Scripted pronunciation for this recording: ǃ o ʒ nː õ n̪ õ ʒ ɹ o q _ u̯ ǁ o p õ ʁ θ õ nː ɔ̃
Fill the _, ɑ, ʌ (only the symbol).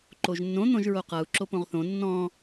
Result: ʌ